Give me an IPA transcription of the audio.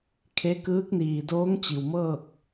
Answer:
kʰ e˧˥ k ɯː˧˥ k̚ n iː˩ d oː˧˥ ŋ t͡ɕ i˩ w m ɤː˥˨ k̚

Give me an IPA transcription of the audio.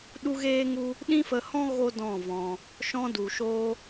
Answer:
ɗ u˧ ɣ eː˧ ŋ u˧ | ɗ ĩ˦ f ə˧ h ɔ̃˦ ɣ o˦ d ɔ̃˦˨ v ɔ̃˧ | ʃ ɔ̃˧ d u˨ ʃ oː˧

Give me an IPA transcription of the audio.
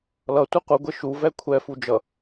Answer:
l ʌ tʷ i qʷ ɯ ɡʷ e ʃ u v ɛ kʷʰ ɛ f u d͡ʒ ʌ

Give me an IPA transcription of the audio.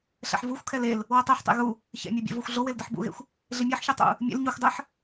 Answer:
ɬ ɛ̰ ħ v u xʷ kʰ ɛ l e l | w ɜ tˤ e ħ tˤ ḛ ɣ u | ç ɛ̰ mʲ o bʲ ḛ v o xʷ ɮ o w e l d ɪ ħ b ṵ ɣ ḛ xʷ | ɮ ɪ mʲ e ħ ç u tˤ ṵ | mʲ ḛ l ɲ u xʷ dˤ ɜ ħ

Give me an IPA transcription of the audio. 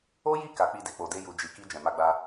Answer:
o˦ j i˦˨ k a˨˦ k͡p i˦˨ d e˨ k͡p o˨ d e˧ j u˨ d͡ʒ i˨ k i˧ d͡ʒ ɛ̃˨ m a˧ ɡ͡b a˧

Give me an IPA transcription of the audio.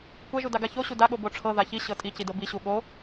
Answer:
kʷ ɛ ʒ u d a ɡ a ç o ɕ u d a ɠ o b o ʈ͡ʂʰ ɤ ð a ç i ɕ ɤ tʼ i c i d ɤ b i ɕ u ɠ o

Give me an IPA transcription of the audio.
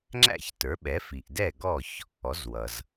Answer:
ŋ͡ǁ æ̰˥˩ ç t ə˞˩˥ ɓ ɛ˩˥ f i˩ ʔ d ɛ˥˩ ɡ ɔ˥˩ ç | ɔ˩˥ z w ʌ˩ z

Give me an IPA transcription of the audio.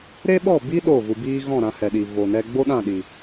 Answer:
ɾ e˦ ɓ ɔ˦˨ b i˦ ɗ o˦˨ v u˧ b iː˦ ɣ ɔ̃˦˨ ɾ ã˧ h ɛ˨ ɗ i˨ v o˨ n ɛ˧ ɡ͡b o˦ ɗ ã˦˨ ɗ i˨

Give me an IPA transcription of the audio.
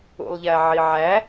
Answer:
ṵ lˠ ʎ æ ʕ i ʕ æ

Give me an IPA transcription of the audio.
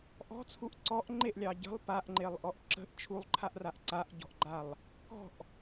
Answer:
ʔ ɔ̤ t͡sʰ u ʔ ǀ ɔ ʔ ŋ͡ǃ e ʔ lʲ ɑ ɟ ə̤ lˠ p a ʔ ŋ͡ǃ e lˠ ʔ ɔ ʔ ǁ ə̤ ʔ t͡ʃʰ u lˠ ǃʰ a ʔ r a ʔ ǀ a ʔ ɟ ɔ̤ ʔ ɡ͡ǃ a lˠ | k ɔ̤ ʔ

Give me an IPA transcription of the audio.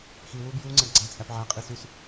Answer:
x i w u b j u ŋ͡ǀ æ ɡ ɡ͡ǀ æ t͡sʼ æ p ʕ æ qʼ i s y s

